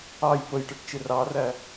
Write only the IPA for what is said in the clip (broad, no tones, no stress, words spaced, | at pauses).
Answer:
ɑj pəjʈəʈt͡ʃɪ rɑræ